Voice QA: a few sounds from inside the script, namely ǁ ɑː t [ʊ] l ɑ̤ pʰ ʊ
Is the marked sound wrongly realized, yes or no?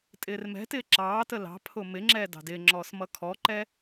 yes